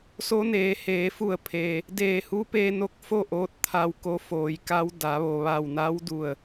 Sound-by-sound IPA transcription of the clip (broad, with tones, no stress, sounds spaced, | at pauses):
s o˧˥ n eː˩˧ h eː˩˧ f u˧˩ ə̯ pʰ e˩ | d eː˧˩ h u˧˥ p e˧ n o˧˥ k̚ f o˥˨ ʔ oː˧˥ t̚ t̪ʰ a˧ w k o˧˥ f oː˩˧ j k a˧˥ w d a˩˧ ʋ o˩ ʋ a˧˩ w n a˧˥ w d u˧˩ ə̯